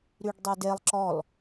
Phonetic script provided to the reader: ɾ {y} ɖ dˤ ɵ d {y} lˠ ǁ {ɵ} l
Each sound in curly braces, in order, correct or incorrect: correct, incorrect: e, incorrect: ɔ

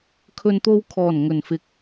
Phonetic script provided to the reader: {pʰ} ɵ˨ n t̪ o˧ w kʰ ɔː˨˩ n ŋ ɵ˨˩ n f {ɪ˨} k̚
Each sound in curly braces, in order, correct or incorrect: incorrect: kʰ, correct

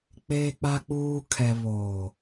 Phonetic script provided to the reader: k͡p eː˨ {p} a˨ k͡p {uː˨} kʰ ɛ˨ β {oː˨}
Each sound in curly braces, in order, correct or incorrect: incorrect: k͡p, correct, correct

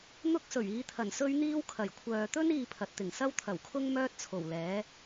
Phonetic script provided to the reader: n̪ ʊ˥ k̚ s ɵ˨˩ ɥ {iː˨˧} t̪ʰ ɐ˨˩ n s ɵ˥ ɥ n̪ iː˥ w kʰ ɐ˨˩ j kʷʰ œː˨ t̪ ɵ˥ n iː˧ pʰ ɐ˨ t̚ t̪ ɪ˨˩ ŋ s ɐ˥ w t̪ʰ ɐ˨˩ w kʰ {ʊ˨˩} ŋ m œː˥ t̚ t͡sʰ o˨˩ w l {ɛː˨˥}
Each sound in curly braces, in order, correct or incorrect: correct, incorrect: ʊ˥, correct

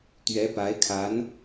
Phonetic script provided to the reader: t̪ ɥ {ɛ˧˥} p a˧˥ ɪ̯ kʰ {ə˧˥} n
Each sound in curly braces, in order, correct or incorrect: correct, incorrect: a˧˥

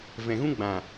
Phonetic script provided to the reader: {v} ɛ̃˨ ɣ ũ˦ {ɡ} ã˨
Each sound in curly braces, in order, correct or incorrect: correct, incorrect: ɡ͡b

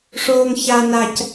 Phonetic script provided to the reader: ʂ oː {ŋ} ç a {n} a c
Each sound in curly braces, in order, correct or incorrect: correct, correct

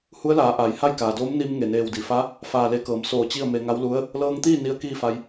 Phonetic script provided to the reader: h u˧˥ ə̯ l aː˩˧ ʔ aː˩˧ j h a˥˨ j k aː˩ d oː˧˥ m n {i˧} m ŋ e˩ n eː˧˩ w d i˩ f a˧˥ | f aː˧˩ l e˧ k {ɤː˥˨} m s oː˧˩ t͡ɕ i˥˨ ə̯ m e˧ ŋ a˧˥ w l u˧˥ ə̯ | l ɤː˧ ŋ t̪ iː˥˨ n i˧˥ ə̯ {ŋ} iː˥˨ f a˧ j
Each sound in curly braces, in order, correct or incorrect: correct, incorrect: ɤː˩˧, incorrect: k

